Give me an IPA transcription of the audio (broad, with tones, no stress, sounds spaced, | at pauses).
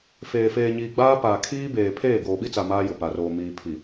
f eː˨ f eː˨ ɲ iː˨ ɡ͡b aː˦ p aː˨ kʰ iː˦ b eː˨ pʰ eː˦˨ ɡ oː˨ ɓ i˦ t͡s a˨ m aː˦ j ʊ˨ p a˨ r oː˨ m iː˨ pʰ i˨